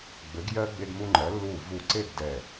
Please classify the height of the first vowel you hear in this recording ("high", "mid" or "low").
mid